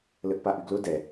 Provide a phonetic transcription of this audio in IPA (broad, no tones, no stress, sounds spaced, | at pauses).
l ə ʔ p a ʔ y ɡ l ʊ d ɛ